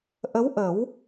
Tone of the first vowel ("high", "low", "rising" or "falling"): rising